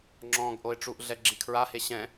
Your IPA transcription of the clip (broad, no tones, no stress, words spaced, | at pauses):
ŋ͡ǁɔ̃ːɡʔoɪ̯ʈ͡ʂuʔɮɛ ɡ͡ǁikʰɹahe ɕɛ̃